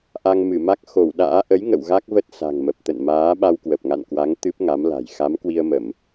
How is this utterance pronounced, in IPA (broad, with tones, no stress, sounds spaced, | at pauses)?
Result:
ʔ a˧ ŋ m ɨ˧˩ m a˦˥ k̚ x o˧˩ w ɗ a̰ː˧˥ ʔ ə˨˦ j ŋ ə̰˧˨ w ɣ a˦˥ k̚ v ə˦˥ t̚ s a̤˨˩ ŋ m ə˨˩ p̚ t̪ ə̰˧˨ n m aː˨˦ ɓ a˧ w k w ə˨˩ p̚ ŋ a̰˧˨ n k w a˨˦ ŋ t̪ ɨ˦˥ p̚ ŋ a˨˦ m l a̤˨˩ j x a˨˦ m k w i˧ ə̯ m ə˧˩˨ m